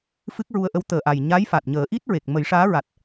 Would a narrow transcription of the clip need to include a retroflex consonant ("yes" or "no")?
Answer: yes